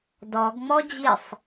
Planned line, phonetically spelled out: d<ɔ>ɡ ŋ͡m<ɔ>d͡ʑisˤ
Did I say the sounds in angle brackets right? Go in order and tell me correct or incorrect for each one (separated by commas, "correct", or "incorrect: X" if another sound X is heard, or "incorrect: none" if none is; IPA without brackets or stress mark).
correct, correct